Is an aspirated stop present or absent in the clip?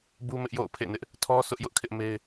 present